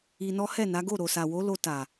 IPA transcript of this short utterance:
i˧nɔ˦ hɛ˦˨na˨˦ɡo˦˨ ɾo˨sa˨wo˨˦lo˧ ta˨

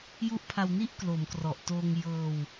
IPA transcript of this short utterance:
ju˦˥ʔpʰa˧wni˥˩ʔ klo˩˦mkrɔ˨˩ʔ toː˧ŋ jɤː˧w

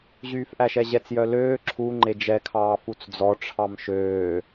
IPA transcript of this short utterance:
ʑyːfʔæʃɛʑɛt͡s jœløː ǁʰu ŋ͡ǃed͡ʒɛkʰɑː fut͡sd͡zɔ ʈ͡ʂʰɑmʃøː

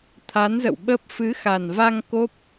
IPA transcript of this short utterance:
t̪ʰa˨˦nzə̰˧˨wɓə˦˥p̚ fɨ˨˦xa˨˩n va˧ŋ ko˦˥p̚

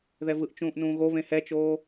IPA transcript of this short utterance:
ðɛvɯʔ t͡ʃũːʔnũːɣoβẽ hɛt͡ʃoː

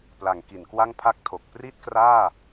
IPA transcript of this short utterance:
pla˩˦ŋ ki˩˦nkwa˥˩ŋ pʰa˥˩k̚tʰo˨˩k̚ pri˥˩t̚kraː˥˩

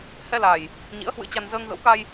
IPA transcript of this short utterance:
hɛ˧la˨˩j | ɲḭ˧˥ə̯hwɨ̰˧˥t͡ɕa˧n zəː˧ŋ ɣə̰˧˥wka˧j

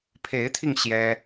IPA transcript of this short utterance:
pʰe˧˥ɪ̯t̪ʰi˧ŋ ɕjɛ˥

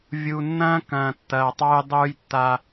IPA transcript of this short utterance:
vʲu˨nːɐ̃ː˦ kɐ̃ː˨tːɐː˨tˤɑ˦j dˤuː˦jtːa˦

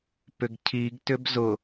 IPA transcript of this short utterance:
pʏɡcʰiɡ tʏbzʊ

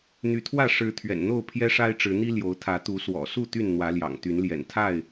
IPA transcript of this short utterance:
n̪y˨˦t̪ʰwä˥˨ ʂɻ̩˨˦ t̪ʰɥɛ̰˨˩nn̪o˥˨ʊ̯ pʰjɛ˦ʂa˦ɪ̯ʈ͡ʂɻ̩˨˦n̪i˦ ljo˨˦ʊ̯t̪ʰä˨˦ t̪u˨˦ swɔ̰˨˩ su˥˨ t̪y˥˨nn̪wä˨˦ljɑ̰˨˩ŋ t̪y˨˦n ljɛ̰˨˩nt̪ʰa˥˨ɪ̯

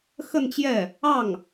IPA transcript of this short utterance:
xə˥˧nt͡ɕjɛ˥˩ | ɑ˥˩ŋ

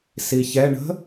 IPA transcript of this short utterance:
siçɛ ɳə̤

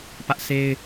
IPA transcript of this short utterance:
pä˦ʔse˦ɪ̯

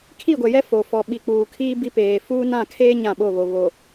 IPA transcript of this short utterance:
kʰi˦˨ɡʷɛ˨jɛ˦ fo˨ fɔ˨ ɓi˨k͡puː˨kʰiː˦ bi˦peː˨ fuː˦nã˦˨kʰeː˦ ɲã˦˨ɓo˦˨βo˨ βo˨

